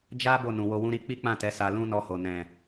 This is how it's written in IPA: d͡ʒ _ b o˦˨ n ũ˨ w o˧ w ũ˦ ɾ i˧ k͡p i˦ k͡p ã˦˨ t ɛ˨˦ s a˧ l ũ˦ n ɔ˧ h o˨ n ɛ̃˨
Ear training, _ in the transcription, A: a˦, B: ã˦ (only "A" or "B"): A